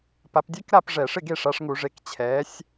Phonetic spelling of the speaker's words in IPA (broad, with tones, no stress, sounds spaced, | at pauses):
p a˨˦ p dʲ ɛ˦˥ k ɾ a˥˨ p ʐ ɛ˧˩˧ ʂ ɪ˥˨ ɡ e˥˨ ʂ a˨˦ ʂ ŋ u˧˩˧ ʐ e˨˦ k t͡ɕʰ ɛː˨˦ sʲ